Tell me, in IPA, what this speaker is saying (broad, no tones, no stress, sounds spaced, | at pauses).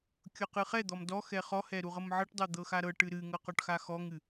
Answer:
kʲ ɤ q ɨ χ ɛ d̪ ɔ m d ɔ x ɛ χ ɔ h ɛ ɾ u ʁ ɤ m ʕ ɤ ʈ dˤ ɤ d̪ ɤ x a ɾ ɤ ʈ ɨ ɾ ɨ ŋ ɤ q ɔ ʈ x a x ɔ ŋ ɨ